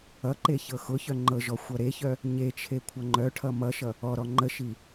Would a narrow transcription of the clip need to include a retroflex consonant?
yes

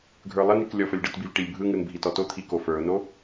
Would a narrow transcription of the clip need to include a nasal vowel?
no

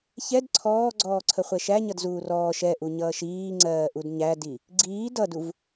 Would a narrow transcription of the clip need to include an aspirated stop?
yes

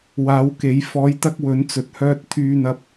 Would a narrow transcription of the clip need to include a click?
no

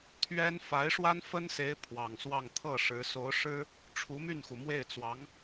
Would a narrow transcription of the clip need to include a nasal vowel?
no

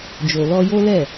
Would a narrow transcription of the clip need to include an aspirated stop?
no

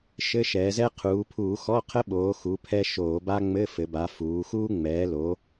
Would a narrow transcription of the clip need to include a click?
no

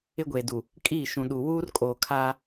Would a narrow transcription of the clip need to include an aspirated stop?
yes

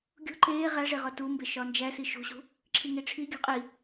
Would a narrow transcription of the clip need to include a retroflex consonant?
yes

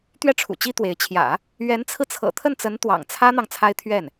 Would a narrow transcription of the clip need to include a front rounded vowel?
no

